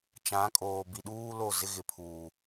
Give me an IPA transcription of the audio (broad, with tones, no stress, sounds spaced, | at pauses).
t͡ʃ ã˨˦ kʼ oː˨ b i˨ ɗ uː˦ l o˦˨ z ɪ˦ ɣ ɪ˨ pʰ uː˨